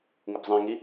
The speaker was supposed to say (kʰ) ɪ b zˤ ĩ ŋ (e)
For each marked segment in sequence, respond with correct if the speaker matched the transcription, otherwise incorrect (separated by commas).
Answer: incorrect, incorrect